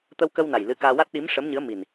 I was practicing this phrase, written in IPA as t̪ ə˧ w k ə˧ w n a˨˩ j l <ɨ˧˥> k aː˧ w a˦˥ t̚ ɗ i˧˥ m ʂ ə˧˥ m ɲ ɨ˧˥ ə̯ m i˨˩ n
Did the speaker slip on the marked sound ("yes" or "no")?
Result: no